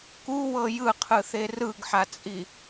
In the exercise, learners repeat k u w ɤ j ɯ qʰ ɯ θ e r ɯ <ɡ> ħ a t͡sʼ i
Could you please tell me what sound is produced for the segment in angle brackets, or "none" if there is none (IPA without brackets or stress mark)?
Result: ɡ